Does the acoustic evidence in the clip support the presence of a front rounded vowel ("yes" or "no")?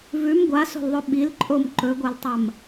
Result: no